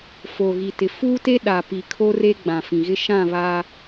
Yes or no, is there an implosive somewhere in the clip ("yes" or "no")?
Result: yes